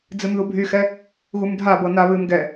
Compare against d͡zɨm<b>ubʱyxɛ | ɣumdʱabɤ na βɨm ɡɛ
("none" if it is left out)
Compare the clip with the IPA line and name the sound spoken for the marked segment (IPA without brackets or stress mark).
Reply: ð